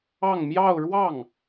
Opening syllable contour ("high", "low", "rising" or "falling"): falling